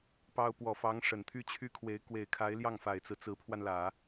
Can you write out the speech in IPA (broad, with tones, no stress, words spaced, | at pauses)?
pɑ˥ʊ̯ pwɔ˨˩fɑ˧˥ŋ ʂə˨˩nt̪ʰy˥t͡ɕʰy˥kʰwe˧˥ɪ̯ kwe˨˩ɪ̯kʰa˧˥ɪ̯ ljɑ˥˩ŋfa˨˩ɪ̯t͡sɹ̩˦ t͡sɹ̩˧˥pʰwa˧nlä˨˩˦